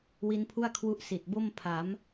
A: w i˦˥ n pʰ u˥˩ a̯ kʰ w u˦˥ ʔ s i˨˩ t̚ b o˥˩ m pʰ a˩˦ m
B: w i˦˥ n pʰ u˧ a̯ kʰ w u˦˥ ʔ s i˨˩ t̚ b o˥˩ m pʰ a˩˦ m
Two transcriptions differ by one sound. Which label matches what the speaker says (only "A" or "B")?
A